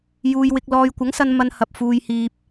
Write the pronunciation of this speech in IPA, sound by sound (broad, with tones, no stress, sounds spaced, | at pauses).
j uː˨ j w ɪ˧ k̚ l ɔː˧ j kʷ ɐ˨˥ ŋ s ɐ˧ n m ɐ˨ n h ɐ˨ p̚ f uː˨ j h iː˨ p̚